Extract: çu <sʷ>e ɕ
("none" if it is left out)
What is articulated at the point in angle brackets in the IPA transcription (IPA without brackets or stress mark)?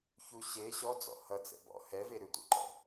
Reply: ɕ